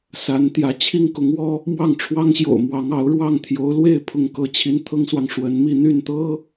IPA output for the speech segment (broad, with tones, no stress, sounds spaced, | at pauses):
s a˧˥ n t̪ j ä˧˥ t͡ɕʰ i˥ ŋ k ʊ˧˥ ŋ w ɔ˥ | m w ɑ˥˩ ŋ ʈ͡ʂʰ w ɑ˥ ŋ ɕ j o̰˨˩ ʊ̯ m w ɑ˧˥ ŋ ɑ˧˥ ʊ̯ ɻ w ɑ˥˩ ŋ t̪ʰ j o˧˥ ʊ̯ l w e˥˧ ɪ̯ pʰ ʊ˥˩ ŋ k ɤ˥ t͡ɕʰ i˥ n t̪ʰ ɤ˥ ŋ s w ɑ˨ ŋ ʂ w ə˧˥ n m i˥˧ n̪ y˥˩ n t̪ ɤ˥